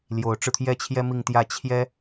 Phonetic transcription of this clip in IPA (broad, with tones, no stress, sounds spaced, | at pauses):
l j o˧˥ ʊ̯ ʈ͡ʂ ɻ̩˧ t̪ʰ j ɛ˥˩ t͡ɕʰ j ɛ˥ m i˥˧ ŋ t̪ j ä˥˩ t͡ɕʰ j ɛ˥